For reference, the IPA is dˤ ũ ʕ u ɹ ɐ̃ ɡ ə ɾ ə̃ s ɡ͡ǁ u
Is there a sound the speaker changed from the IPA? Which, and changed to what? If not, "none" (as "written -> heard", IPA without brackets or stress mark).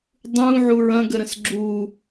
none